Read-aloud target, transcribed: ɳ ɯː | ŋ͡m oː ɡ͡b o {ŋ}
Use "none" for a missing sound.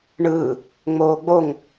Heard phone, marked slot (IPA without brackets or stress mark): ŋ